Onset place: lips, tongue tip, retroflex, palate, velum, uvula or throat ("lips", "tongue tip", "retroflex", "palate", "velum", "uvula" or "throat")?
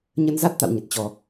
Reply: palate